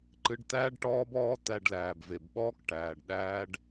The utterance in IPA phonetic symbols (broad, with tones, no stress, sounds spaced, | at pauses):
ǃ ɨ˧ ɖ t̪ æː˦ ɖ ʈ ɔː˦ b ɔː˦ t̪ æ˧ ɖ l æː˨ b v e˨ b ɓ ɔː˦ k ʈ æː˨ ɖ ɗ æː˦ ɖ